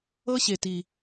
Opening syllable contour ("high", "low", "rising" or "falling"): high